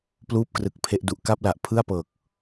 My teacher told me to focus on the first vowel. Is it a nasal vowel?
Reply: no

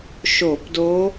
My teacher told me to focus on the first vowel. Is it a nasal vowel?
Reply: no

